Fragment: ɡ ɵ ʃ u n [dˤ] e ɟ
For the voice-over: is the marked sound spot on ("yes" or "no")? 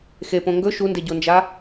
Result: no